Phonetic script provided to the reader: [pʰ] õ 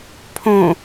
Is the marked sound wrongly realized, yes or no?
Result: no